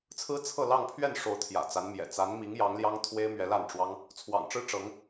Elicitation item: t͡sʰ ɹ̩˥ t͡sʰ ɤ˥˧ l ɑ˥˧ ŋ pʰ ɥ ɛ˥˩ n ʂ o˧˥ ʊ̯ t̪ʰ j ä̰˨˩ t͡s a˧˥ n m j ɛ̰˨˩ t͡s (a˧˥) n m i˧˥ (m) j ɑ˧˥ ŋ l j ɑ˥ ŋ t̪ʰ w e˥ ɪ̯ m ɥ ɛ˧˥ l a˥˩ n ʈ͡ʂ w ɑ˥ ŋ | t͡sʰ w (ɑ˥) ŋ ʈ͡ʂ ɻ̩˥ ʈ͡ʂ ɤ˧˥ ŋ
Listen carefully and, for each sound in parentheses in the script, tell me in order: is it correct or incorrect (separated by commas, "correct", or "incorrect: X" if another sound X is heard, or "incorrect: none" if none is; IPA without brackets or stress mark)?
correct, incorrect: ŋ, incorrect: ɑ̰˨˩